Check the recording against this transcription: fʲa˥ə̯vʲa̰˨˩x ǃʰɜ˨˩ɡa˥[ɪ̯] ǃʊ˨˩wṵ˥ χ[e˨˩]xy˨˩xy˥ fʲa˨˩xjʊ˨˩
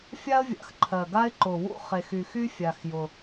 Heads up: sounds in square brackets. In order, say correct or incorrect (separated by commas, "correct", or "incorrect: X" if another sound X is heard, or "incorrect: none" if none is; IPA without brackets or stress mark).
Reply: correct, correct